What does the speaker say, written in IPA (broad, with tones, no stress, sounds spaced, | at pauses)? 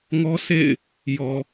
ŋ ɔ˦ sʰ ḛ˦˨ ɪ̯ | j ɔ˨